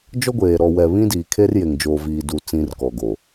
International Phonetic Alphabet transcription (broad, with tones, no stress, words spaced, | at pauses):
d͡ʒɔ˦ɡʷeː˨ ɾɔ˨ wɛ˨ βĩ˦diː˨ kʰe˦rje˨ŋd͡ʒoː˨viː˨ du˨t͡sĩ˨r kɔ˨ɡo˨